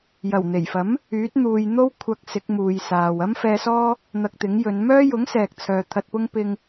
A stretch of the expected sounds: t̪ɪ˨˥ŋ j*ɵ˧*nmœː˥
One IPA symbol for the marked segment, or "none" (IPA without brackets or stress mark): ɵ˨˧